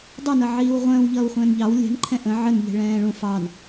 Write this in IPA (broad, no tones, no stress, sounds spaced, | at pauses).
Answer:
dˤ ɛ n ʌ ʕ iː w ʁʷ ə̃ː w ʎ ʌː w χʷ ə̃ː n ʎ ɑ w lʲ ɛ̤ n ǃʰ ɛ̃ ʔ ə̃ ʕ ə n ʎ ɛ̤ ɭ ɛ̃ː ɭ ũ f ɑ n